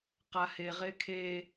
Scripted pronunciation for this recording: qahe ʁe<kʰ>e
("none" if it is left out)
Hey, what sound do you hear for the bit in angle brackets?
kʰ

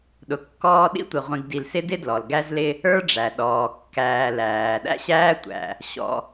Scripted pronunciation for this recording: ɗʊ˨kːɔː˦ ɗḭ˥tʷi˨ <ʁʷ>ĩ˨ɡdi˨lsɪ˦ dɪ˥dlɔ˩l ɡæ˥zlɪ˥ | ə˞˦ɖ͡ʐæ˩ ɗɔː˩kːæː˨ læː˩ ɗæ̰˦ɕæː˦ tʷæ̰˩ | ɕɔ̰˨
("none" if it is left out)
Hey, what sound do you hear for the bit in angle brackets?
ʁʷ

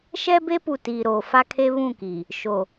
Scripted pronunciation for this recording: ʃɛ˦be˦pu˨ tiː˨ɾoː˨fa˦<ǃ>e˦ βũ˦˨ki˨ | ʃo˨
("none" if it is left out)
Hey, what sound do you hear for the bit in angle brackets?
kʰ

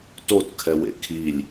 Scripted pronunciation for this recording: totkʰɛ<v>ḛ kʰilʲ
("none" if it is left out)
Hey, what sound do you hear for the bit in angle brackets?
w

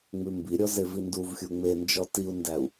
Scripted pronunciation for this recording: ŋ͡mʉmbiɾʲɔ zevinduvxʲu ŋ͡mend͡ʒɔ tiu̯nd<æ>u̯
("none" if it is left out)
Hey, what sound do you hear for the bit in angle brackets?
æ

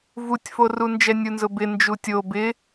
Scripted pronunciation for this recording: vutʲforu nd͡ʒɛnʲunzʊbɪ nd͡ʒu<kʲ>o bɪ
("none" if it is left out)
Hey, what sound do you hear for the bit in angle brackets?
tʲ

